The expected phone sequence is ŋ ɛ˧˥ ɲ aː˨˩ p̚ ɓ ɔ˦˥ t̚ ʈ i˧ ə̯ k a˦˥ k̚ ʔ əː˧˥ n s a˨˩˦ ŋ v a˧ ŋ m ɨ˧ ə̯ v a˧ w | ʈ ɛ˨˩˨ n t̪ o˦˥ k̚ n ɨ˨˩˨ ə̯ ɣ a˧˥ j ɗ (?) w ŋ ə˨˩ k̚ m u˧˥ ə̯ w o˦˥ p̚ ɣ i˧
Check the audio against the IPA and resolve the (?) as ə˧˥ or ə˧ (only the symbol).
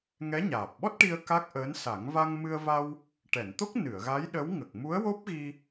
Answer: ə˧˥